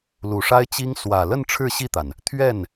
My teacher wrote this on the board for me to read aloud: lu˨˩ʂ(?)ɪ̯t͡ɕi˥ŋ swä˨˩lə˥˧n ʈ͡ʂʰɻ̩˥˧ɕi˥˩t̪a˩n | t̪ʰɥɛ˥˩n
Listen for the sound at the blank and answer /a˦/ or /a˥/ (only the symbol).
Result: a˥